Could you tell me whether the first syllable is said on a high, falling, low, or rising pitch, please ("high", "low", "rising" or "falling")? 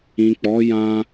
low